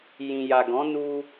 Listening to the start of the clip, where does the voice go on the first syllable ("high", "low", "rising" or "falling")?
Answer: low